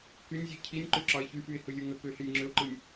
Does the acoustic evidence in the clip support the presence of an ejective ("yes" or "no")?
no